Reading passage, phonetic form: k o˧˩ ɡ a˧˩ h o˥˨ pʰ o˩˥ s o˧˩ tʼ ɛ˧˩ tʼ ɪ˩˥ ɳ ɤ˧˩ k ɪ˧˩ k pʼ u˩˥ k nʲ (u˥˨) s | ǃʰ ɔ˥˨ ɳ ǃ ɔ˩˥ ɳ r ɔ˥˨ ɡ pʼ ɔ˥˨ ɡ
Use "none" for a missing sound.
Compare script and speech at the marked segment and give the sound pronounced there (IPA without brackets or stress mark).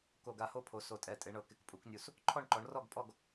u˧˩